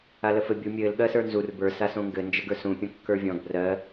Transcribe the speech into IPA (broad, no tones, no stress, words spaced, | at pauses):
aləfɘ bʲu mʲɘːl ɠɜsə˞nzur bə˞ sasõŋɡɘ nd͡ʒəɡə˞sũ pʲõkːə˞vʲɔ̃ɡ brɜ